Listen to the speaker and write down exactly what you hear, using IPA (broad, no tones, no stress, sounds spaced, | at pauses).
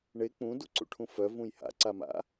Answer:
ɳ e k͡p ũ d u ǀ ṵ ʈʰ ũ f œ v ũ j h a̰ ǀ a m a̰